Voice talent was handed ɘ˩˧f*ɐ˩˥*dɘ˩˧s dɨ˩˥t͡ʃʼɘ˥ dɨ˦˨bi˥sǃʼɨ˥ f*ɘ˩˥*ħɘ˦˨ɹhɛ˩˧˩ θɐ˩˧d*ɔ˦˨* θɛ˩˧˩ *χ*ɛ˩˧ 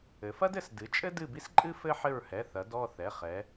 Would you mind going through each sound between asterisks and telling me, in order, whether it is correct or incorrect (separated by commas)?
incorrect, incorrect, correct, correct